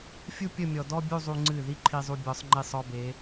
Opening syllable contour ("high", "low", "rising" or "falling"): high